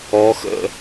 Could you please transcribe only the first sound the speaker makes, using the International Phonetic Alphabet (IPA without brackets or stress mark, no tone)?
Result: ɔ